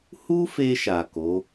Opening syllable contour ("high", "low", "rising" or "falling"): high